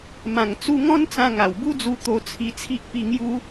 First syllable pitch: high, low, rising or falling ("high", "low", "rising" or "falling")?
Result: low